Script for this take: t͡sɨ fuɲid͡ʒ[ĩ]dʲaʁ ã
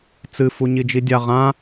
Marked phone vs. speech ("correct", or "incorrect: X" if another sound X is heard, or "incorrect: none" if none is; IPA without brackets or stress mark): incorrect: i